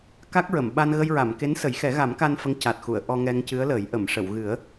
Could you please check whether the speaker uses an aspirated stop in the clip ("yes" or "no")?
no